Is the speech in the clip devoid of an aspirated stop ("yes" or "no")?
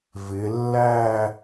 yes